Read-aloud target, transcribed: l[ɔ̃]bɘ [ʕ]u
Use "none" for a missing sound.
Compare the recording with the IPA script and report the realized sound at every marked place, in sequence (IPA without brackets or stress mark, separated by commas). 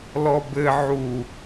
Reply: ɔ, ʕ